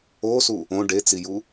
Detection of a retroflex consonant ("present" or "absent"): present